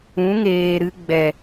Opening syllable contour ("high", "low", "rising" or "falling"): rising